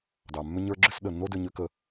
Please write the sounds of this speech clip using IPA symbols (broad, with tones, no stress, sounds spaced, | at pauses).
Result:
d ɑ˩ mː ʏ˥ ɲ ə˞˥ ɡ͡ǁ ʏ˥ s ɗ ə˩ nː o˥ d ʏ˧ ɲ ʏ˥ k ə˧